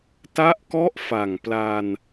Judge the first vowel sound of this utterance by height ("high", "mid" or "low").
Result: low